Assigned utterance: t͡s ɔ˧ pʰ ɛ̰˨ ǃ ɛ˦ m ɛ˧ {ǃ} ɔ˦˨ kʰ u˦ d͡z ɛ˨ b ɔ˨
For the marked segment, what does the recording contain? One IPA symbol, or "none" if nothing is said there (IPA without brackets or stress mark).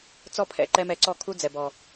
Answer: ǀ